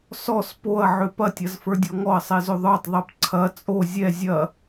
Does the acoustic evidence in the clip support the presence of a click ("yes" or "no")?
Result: yes